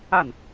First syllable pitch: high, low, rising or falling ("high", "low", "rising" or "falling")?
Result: falling